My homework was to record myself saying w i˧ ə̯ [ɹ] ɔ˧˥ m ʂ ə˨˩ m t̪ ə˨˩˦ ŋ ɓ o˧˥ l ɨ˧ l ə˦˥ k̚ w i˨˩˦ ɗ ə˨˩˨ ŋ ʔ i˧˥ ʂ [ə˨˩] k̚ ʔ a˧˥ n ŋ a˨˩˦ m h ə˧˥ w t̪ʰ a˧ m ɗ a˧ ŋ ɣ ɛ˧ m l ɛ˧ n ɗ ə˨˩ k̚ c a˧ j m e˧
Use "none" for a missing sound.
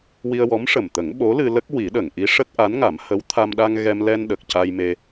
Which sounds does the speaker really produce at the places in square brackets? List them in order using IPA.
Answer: w, ə˦˥

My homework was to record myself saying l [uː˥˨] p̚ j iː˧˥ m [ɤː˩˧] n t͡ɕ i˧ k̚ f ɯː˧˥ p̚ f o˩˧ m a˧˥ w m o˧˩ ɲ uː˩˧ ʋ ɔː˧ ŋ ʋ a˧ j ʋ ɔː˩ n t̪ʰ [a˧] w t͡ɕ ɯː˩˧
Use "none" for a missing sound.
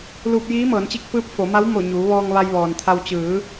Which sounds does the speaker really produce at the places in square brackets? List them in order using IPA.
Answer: uː˧, ɤː˩˧, a˧

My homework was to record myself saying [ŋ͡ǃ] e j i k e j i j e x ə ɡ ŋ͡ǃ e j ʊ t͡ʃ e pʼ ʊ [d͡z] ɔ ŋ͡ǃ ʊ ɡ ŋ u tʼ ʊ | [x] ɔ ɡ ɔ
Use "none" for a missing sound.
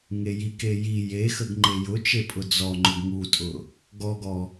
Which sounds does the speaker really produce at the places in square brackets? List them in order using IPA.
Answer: ŋ, d͡z, ɡ

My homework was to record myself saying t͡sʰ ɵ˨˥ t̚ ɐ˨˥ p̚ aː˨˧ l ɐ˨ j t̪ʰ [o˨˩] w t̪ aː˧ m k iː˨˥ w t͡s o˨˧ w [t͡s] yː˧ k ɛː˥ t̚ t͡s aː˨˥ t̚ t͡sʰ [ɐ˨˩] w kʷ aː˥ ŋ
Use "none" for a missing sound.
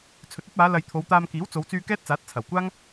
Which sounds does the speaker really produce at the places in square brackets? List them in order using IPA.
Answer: o˨˧, t͡s, ɐ˨˩

